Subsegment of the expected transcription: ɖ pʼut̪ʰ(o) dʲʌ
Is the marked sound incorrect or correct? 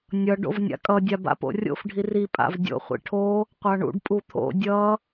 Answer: incorrect